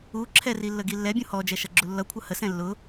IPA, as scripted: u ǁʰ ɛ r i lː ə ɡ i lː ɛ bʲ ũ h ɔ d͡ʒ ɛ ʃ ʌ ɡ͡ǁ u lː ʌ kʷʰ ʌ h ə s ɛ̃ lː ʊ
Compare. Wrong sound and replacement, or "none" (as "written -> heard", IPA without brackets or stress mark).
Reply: none